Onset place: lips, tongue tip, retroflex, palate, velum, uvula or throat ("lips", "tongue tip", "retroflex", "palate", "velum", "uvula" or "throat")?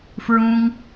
lips